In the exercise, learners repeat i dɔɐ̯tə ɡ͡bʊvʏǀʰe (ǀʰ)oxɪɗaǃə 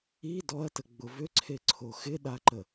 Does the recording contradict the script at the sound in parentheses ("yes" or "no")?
no